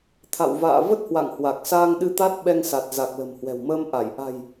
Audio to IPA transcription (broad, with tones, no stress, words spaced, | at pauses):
t̪ʰa̰˧˨wva̰ː˧˨ və˦˥t̚hwa̰˧˨ŋhwa˨˩k̚saː˧ŋ ɗɨ˧t̪a˦˥t̚ ɓɛ˧ŋsa˨˩t̚za˨˩k̚ lə̤˨˩mhwɛ̤˨˩wməː˧m ʔa˧˩j ʔa̤˨˩j